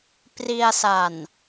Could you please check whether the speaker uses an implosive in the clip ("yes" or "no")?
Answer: no